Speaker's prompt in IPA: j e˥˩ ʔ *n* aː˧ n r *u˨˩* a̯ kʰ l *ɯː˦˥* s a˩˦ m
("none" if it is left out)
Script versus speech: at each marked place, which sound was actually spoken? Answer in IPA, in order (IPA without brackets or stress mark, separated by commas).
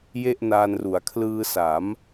n, u˩˦, ɯː˧